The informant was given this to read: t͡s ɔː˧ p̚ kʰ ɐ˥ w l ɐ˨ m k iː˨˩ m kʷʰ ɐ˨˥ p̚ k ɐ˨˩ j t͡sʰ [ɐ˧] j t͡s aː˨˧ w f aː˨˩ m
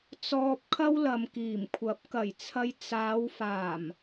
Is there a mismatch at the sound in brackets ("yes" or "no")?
no